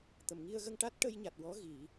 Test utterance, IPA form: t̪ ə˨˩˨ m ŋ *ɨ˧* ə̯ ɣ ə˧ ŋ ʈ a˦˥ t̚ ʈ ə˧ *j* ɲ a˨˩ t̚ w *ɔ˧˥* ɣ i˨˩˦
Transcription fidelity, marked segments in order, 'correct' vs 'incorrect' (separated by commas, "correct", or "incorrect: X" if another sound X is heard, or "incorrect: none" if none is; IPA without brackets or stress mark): incorrect: i˧, correct, correct